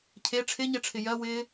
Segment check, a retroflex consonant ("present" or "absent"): present